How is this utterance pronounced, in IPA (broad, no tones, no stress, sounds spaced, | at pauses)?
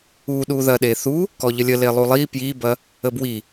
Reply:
u ɗ u ð ɐ ɗ e θ u | k ɔ ʎ ə lʲ ə l e lˠ u lˠ i p j i b ɐ | ə b w i